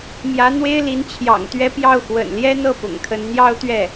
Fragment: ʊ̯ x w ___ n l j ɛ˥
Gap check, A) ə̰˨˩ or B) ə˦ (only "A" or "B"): A